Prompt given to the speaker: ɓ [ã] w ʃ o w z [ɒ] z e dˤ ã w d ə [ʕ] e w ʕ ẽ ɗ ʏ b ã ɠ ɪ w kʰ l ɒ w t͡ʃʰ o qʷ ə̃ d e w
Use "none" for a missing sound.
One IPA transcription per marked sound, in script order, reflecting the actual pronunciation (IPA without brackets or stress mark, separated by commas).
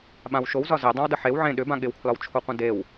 ã, ɒ, ħ